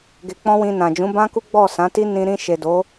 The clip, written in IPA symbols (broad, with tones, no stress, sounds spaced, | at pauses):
ɡ e˧ k͡p ɔ̃˦ w ĩ˧ n ã˨ d͡ʒ ũ˨˦ b ã˦ k u˦ ɡ͡b ɔ˦˨ s ã˨˦ t i˦ n ĩ˧ ɾ ĩ˧ ʃ e˨ d o˨˦